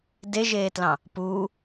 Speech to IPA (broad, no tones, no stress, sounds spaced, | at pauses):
d e ʒ eː t l ɑ̃ | p uː